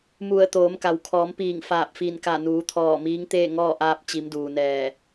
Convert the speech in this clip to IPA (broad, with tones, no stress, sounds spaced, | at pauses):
m u˧˩ ə̯ t̪ oː˩˧ m k a˩ w kʰ ɔː˩˧ m p iː˧˩ ŋ f aː˧˩ p̚ f i˧˩ n k a˧˩ n uː˩˧ t̪ʰ ɔː˧˩ m iː˧˥ ŋ t̪ eː˥˨ ŋ ɔː˥˨ ʔ aː˧ p̚ t͡ɕ i˩˧ m d uː˩ n ɛː˧˩